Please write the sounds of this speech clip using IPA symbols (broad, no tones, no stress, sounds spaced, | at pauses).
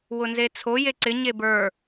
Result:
w ʊ n z e t͡sʰ o j e ǀ ɪ ɲ e b ə˞